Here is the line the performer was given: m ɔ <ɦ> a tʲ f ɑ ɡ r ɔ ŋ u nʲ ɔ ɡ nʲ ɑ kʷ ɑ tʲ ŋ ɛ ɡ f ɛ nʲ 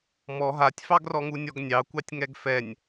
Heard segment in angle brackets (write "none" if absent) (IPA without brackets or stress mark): ɦ